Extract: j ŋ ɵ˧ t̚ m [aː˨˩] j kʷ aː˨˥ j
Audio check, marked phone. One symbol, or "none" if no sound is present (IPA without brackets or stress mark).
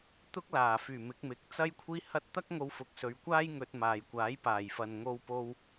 aː˨